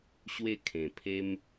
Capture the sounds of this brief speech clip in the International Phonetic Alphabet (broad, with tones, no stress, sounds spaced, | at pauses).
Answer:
ɕ w e˥˧ kʰ ẽ˨˩ pʰ e˧ m